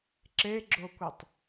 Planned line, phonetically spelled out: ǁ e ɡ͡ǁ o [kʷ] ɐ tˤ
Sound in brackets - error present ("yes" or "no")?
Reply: no